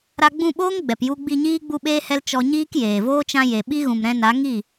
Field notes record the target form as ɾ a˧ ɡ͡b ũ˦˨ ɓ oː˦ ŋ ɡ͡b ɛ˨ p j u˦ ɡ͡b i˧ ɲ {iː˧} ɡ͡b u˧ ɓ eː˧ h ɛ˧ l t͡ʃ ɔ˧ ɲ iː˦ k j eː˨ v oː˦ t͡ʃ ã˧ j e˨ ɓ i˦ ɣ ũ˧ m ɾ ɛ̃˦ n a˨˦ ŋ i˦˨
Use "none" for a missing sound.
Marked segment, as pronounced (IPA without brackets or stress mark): iː˦